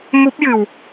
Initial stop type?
plain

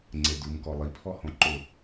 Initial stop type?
click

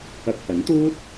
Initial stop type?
plain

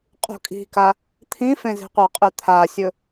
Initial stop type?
ejective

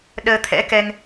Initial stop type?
implosive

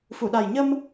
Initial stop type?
implosive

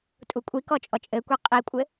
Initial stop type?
ejective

